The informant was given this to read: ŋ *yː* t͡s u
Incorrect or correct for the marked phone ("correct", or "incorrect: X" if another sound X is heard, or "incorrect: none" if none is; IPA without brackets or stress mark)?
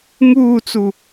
incorrect: uː